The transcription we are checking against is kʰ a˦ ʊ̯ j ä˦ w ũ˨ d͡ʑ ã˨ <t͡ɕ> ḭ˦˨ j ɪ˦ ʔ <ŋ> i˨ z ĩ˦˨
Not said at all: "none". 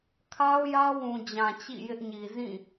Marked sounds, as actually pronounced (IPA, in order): t͡ɕ, ɲ

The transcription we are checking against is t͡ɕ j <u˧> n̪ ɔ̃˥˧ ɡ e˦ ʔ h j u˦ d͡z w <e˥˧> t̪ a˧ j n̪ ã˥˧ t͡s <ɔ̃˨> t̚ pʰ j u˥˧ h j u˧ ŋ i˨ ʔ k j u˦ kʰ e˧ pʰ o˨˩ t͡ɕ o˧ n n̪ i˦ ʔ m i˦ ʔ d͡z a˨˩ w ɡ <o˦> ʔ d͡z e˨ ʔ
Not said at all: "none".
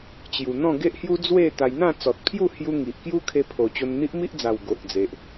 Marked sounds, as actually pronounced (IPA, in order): u˨˩, e˥˧, ɔ˨, o˨

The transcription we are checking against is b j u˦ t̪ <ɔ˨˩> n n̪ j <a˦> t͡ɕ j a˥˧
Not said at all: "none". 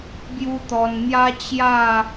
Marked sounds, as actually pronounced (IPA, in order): ɔ˧, a˦

